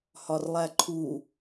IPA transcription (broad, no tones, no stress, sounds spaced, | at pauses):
h ɒ r lˠ æ ǃʰ u